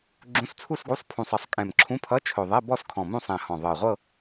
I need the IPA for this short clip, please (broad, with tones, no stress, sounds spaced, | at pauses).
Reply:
ɡ͡ǁ ũ˧˥˧ s t͡sʰ u˥˧ s ɡ u˧˥˧ sˤ pʰ ũ˨˩ sˤ ʌ˨˩ sˤ kʼ ɛ̃˨˩ m ǁʰ ũ˧˥˧ pʰ ʌ˧˥˧ t͡ʃʰ ɵ˨˩ ðˤ ɛ˧˥˧ b ɔ˥˧ s kʰ ɔ̃˨˩ m ũ˥˧ sˤ ɛ̃˨˩ h ɔ̃˨˩ ðˤ ɤ˨˩ ʁʷ ɤ˥˧